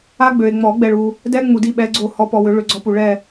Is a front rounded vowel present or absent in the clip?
present